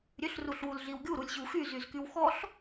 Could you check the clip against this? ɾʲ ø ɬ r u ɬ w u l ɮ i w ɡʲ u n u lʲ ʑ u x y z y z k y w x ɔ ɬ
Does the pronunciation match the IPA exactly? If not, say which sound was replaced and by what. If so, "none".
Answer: n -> ɾ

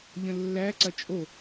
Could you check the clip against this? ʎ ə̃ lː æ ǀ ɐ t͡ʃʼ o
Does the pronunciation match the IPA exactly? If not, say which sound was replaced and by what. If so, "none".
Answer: none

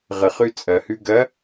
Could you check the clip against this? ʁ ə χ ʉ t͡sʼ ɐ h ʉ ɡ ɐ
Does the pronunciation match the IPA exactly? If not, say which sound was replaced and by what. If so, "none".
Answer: none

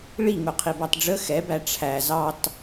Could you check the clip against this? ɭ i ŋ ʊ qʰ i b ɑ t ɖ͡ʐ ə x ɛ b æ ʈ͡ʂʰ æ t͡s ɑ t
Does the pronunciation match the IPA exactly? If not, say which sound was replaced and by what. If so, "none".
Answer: t͡s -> z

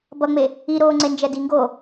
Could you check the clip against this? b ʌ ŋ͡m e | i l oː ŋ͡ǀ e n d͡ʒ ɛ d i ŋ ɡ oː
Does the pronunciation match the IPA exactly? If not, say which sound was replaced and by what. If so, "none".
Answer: l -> ɾ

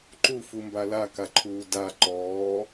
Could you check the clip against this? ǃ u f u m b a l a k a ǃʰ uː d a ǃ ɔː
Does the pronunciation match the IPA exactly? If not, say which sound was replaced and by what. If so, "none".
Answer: none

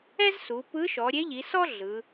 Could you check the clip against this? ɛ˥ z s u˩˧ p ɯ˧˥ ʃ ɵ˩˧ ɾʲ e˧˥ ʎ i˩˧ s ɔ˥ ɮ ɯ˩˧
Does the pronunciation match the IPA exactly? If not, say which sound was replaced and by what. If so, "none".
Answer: ɵ˩˧ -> ɔ˩˧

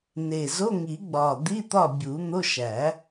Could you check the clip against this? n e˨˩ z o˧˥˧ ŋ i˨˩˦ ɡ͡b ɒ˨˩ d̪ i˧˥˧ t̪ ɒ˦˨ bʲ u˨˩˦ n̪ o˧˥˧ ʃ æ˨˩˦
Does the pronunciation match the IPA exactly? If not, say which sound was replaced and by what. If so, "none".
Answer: none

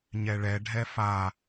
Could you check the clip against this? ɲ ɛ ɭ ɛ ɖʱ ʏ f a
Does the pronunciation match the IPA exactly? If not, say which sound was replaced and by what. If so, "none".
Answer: ʏ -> ɛ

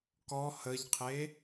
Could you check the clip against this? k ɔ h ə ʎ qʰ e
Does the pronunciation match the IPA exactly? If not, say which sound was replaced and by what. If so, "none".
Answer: none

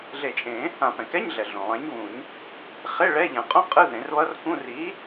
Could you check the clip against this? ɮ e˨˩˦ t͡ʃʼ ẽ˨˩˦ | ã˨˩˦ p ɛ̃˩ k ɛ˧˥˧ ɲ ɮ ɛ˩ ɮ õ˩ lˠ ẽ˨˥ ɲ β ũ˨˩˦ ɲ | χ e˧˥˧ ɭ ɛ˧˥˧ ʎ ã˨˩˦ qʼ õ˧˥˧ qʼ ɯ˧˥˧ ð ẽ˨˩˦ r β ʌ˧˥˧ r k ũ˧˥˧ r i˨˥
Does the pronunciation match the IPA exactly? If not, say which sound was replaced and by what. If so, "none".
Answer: none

